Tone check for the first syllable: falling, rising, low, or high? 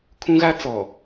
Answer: high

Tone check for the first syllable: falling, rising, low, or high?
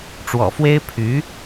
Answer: low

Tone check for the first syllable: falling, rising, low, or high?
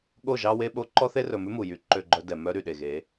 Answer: falling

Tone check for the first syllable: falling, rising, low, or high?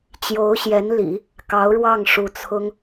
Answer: rising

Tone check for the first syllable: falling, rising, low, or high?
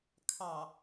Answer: low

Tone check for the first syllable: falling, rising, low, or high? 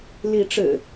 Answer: rising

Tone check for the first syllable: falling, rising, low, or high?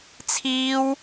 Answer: high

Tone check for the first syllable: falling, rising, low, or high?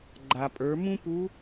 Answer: low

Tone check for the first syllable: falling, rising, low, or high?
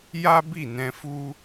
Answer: high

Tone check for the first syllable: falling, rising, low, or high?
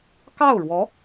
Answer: falling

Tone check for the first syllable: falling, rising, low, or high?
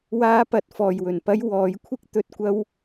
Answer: high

